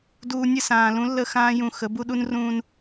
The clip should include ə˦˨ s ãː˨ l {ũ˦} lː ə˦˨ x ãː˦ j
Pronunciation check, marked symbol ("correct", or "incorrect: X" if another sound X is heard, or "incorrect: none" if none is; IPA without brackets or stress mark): correct